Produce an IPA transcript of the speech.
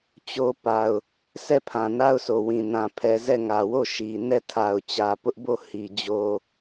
t͡ɕ o˦ p a˨ ʊ̯ | sʰ ɛ˦˨ pʰ ã˨ n a˦ ʊ̯ sʰ o˨ w ĩ˨ n ã˨ pʰ ɛ˨ z ɛ˦˨ ŋ ä˨ w o˦˨ ʃ i˨ n ɛ˦˨ tʰ a˨ ʊ̯ t͡ɕ ä˨ p ʊ˦ ʔ b o˦˨ h i˨ d͡ʑ o˦

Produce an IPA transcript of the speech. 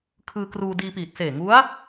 kʰ ɯː˧ k r uː˧ d iː˧ p iː˨˩ t̚ s eː˨˩ ŋ u˦˥ a̯

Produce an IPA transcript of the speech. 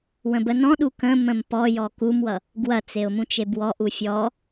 w ə̃ b ə n ɔ̃ ɗ u k ə̃ m ə̃ m p ɔ j ɔ k u m w ʌ | ɡ w ɐ t͡s e ʊ̯ m ũ t͡ʃ e b w ɔ ʔ u fʲ ɔ

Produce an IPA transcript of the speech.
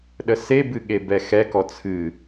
ɗ ə s e b ɨ ɠ e b ɛ x ɛ k ɔ t͡sʰ ɨ

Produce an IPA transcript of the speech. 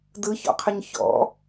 d ɯ ç ɔ̰ qʰ ə ɲ ç ɔ̰

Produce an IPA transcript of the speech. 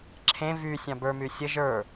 ǁʰ ẽ v y sʲ ɑ̃ b ə˞ m y sʲ ə ʒ ə˞

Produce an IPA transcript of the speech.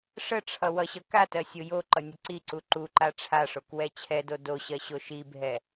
ʂ ə ʈ͡ʂʰ ʌ w ʌ ɕ ʌ k a t ɜ sʲ o j o ǃ ʌ nʲ ə ǀ i ǀ u ǃ u ǃ a ʈ͡ʂʰ a ʂ o k w ɛ t͡ɕʰ ɛ d o d o ɕ ɜ ɕ o ʃ i bʱ ɛ

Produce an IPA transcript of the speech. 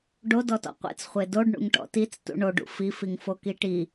ɖ o d ɔ t ɔ̰ qʷ ḛ t͡s χʷ e d o ɖ ɳ ṵ ŋ ʈ ɔ̰ t i t͡s t ṵ ɳ o ɖ ṵ f i f i ŋ f o k i ʈ i

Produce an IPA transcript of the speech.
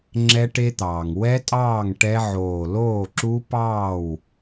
ŋ͡ǁ ɛ˦˥ ʈ e˦˥ t̪ ɑː˩ ŋ w ɛ˦˥ tʼ ɑː˥˩ ŋ ʈ ɛ˦˥ ʕ oː˧˩ l oː˥˩ ǁ u˦˥ p ɑː˥˩ w

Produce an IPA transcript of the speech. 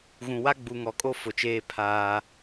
ɣ ũ˨ w a˦ ɡ͡b u˨ ŋ ɔ˨ kʼ o˦ f ʊ˨ t͡ʃ eː˦ pʰ aː˦

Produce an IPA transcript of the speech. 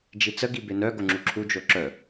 d͡ʒ i t͡s ə ɡ i b e n œ ɡ o ŋ͡ǁ u ǁʰ u d͡ʒ o ǁ œ

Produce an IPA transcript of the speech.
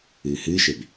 ɨː h ɨː ʃ e b

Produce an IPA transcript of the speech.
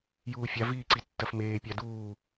j uː fʲ a v iː ǀ i tː ɐ f m eː pʲ a d uː

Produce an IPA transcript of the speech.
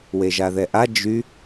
w e ʒ a ð ɛ ʔ a d͡ʒ y

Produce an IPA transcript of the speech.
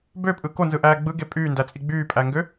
b ø pʼ ɯ k o n z ɯ ʔ æː ɡ͡b ɯ ɡ e pʼ yː n d æ t͡sʼ i ɡ͡b yː pʼ æ ŋ ɡ ø

